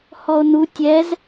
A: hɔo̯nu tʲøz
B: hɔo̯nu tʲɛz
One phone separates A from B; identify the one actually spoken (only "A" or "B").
B